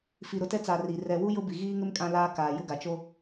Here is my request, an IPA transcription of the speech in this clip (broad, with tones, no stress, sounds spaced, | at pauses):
f i˨ ɾ ʊ˨ t ɛ˦ t͡s a˨ r i˨ r ɛ˨ w u˦ j ʊ˦ b i˨ ɣ iː˦ ŋ ɪ˦ m kʼ ã˦ l aː˦ k aː˨ j ʊ˦ ɡ a˨ t͡ʃ o˦